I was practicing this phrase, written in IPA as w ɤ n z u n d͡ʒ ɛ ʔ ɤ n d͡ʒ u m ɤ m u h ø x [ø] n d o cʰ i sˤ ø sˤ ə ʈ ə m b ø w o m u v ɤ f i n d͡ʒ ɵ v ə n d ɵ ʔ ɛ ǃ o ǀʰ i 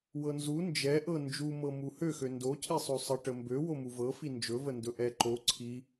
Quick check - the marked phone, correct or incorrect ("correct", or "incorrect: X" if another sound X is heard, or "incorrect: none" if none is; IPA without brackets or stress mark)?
correct